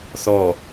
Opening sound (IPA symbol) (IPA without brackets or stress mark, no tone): θ